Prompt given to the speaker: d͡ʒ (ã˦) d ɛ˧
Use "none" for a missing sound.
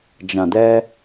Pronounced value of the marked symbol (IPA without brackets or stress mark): ã˨